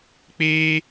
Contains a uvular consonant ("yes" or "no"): no